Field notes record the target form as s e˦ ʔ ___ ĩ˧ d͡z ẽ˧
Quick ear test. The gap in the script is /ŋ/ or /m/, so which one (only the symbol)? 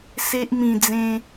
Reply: m